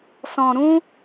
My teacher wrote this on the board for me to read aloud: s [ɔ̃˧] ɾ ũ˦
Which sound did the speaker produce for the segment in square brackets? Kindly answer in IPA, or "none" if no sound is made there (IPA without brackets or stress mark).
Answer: ɔ̃˧